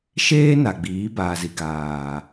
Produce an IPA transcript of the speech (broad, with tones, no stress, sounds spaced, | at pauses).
ʃ eː˦ n a˨ ɡ͡b iː˨˦ b aː˨ z i˨ ɡ aː˨